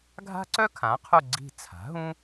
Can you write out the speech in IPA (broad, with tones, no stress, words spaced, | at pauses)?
ɡʱa̤˥ǀœ˥ kʰã˩˥qʰu˦˨ ɡ͡ǀi̤˦˨t͡sʰa̤˩˥ɦũ˥